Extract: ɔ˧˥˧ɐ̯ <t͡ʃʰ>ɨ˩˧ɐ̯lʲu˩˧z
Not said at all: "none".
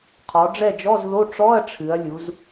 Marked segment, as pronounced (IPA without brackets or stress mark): ʈ͡ʂʰ